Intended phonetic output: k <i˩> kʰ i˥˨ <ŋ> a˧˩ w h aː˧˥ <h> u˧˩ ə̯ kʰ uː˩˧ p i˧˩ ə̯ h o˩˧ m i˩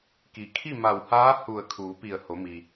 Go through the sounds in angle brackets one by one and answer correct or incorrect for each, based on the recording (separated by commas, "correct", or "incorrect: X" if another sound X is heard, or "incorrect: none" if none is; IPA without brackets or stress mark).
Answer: correct, incorrect: m, correct